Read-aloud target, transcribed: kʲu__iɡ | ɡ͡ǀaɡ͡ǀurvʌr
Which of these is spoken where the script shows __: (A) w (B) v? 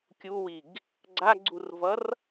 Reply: A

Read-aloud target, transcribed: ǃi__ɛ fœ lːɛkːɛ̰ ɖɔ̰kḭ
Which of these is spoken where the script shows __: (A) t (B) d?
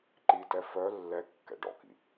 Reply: A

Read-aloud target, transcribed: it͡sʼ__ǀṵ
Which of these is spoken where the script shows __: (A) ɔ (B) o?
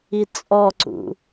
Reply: A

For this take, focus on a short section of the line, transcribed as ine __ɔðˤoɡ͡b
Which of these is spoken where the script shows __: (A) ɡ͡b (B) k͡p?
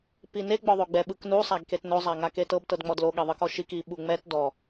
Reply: A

